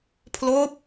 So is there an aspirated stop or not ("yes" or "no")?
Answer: yes